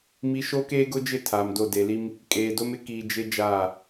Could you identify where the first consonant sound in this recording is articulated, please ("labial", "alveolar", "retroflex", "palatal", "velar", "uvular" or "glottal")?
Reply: labial